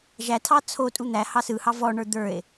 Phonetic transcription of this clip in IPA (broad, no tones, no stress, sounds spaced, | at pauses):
ʒ æ tʰ ɑ t͡sʰ o tʼ u n̪ æ h ɑ s ɯ h ɑ v ɔ ɳ ə˞ d̪ ə˞ e̯